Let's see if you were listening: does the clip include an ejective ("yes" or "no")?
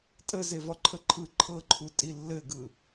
yes